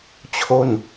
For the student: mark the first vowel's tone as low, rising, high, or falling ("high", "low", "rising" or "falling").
falling